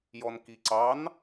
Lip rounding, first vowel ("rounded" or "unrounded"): rounded